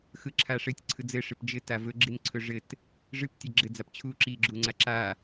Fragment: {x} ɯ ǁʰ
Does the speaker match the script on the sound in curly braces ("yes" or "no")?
yes